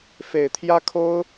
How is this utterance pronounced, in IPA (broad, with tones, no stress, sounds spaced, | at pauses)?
f e˨˩ ɪ̯ t̪ʰ j ä˦ kʰ o˦ ʊ̯